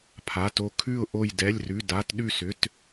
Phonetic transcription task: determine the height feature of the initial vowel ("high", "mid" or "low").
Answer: low